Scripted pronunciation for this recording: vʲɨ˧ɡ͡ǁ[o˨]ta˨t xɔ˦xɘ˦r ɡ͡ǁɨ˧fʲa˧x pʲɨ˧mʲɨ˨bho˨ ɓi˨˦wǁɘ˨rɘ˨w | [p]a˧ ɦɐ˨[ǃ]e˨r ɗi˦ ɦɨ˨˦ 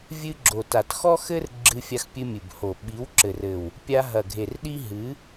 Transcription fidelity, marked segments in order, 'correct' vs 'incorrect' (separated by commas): correct, incorrect, incorrect